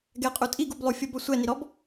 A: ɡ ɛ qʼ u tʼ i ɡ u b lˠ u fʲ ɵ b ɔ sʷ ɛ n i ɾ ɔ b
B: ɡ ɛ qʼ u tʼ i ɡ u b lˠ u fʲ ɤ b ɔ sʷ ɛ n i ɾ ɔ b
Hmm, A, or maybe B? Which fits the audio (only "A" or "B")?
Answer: B